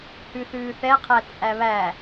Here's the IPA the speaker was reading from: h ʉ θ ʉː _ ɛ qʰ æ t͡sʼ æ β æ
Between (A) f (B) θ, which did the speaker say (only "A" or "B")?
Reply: B